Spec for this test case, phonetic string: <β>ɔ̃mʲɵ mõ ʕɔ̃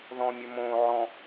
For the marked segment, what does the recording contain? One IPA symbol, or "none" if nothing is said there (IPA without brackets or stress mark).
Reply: ð